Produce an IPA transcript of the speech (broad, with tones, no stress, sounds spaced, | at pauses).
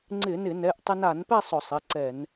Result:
ŋ͡ǀ ɪ˧˩˧ n ɪ˧˩˧ n ɛ˩˧˩ ʔ tˤ ɪ˧ n a˧˩˧ n p ɛ˥˧ sˤ ʊ˧˩˧ sˤ ɪ˩˧˩ ǀ ɛ˧˩˧ n